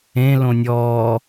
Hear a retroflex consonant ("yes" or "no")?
no